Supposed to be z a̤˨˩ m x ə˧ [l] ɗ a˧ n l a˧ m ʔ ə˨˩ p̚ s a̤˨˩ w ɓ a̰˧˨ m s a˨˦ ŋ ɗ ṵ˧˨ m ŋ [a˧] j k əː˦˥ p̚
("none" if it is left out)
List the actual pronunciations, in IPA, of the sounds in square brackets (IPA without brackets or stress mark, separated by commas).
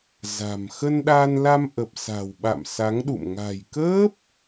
n, a̤˨˩